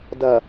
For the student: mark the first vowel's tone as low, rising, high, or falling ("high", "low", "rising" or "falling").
low